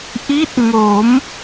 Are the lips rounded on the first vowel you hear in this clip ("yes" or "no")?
no